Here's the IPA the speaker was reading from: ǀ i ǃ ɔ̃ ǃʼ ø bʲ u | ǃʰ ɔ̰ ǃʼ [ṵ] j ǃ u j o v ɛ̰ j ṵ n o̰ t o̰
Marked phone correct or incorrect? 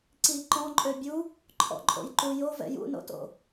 incorrect